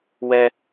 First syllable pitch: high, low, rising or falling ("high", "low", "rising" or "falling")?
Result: high